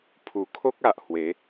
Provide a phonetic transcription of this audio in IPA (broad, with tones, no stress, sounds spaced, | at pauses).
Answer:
pʰ u˨˩ kʰ o˦ k̚ a˨ ʔ h w e˨˦